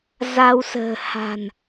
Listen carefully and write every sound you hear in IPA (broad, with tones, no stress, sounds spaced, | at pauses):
z a˧ w s ə̤ː˨˩ h a̤˨˩ n